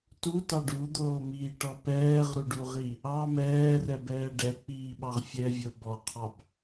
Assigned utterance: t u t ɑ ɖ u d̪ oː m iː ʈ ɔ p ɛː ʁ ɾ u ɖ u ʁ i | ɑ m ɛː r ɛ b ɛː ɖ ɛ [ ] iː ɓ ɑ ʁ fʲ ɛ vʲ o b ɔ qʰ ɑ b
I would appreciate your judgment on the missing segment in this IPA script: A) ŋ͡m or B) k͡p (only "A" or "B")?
B